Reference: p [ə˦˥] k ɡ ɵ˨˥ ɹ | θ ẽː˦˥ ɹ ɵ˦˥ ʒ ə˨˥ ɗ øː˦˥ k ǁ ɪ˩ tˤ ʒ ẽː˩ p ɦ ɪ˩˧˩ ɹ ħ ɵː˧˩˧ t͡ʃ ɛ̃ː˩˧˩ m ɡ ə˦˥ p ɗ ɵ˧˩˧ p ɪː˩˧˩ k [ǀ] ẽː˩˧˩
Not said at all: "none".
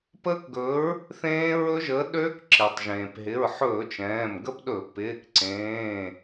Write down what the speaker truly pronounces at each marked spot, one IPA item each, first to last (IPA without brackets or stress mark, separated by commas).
ə˦˥, ǀ